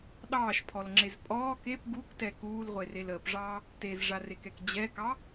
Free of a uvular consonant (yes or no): no